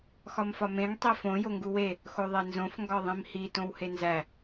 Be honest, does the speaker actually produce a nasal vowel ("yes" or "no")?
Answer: yes